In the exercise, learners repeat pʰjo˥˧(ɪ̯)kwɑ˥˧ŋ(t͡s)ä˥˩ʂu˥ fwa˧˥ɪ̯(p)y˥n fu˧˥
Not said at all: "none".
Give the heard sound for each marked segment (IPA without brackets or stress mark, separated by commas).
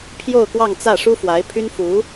ʊ̯, t͡s, pʰ